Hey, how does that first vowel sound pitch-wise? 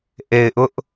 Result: low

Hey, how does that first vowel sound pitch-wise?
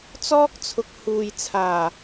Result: high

